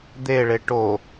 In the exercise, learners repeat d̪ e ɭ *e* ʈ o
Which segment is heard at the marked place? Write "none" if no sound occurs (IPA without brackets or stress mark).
e